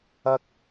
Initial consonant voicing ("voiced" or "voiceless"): voiceless